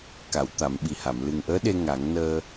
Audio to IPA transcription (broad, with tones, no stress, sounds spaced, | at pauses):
k a˨˩˨ w t̪ a˨˩˨ m ɓ i˨˩ h a˨˩˨ m l ɨ˨˩ ŋ ʔ əː˧˥ ɗ e˧ ŋ a˨˩˦ ŋ n əː˧